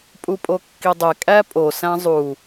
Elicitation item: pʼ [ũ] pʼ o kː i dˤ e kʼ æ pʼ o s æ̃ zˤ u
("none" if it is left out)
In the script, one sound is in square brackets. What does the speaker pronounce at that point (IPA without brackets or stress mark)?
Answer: u